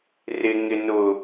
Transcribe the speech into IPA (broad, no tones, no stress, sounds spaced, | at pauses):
r ɪ ŋ ɪ n ʊ